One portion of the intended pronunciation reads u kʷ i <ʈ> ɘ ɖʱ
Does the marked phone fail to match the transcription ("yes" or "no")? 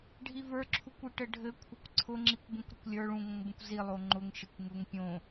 no